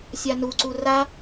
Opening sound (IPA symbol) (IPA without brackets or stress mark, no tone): sʲ